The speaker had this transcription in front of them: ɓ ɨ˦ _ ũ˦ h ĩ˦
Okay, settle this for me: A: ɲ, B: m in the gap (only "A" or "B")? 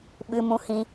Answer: B